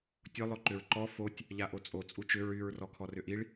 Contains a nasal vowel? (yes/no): no